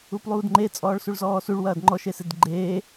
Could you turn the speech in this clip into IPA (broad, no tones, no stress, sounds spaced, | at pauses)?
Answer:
u p lˠ uː d ŋ͡ǃ e t͡sʼ ɔː ɭ s u ɭ z ɔː s u ɭ w ɐː d ŋ͡ǃ ɔ ʃ e s e d ɡ͡ǃ eː